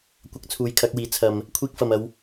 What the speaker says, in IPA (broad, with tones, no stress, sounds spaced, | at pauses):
kʷ ɐ˨˥ k̚ t͡sʰ uː˨˥ j kʰ ɐ˨˥ k̚ w iː˨˥ t͡sʰ ɐ˨ m | kʷʰ iː˧ k̚ f ɐ˨ m ɐ˨˧ w